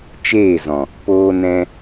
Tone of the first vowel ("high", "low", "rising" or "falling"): falling